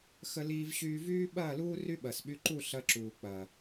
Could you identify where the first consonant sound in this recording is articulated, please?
velar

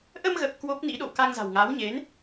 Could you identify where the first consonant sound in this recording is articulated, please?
glottal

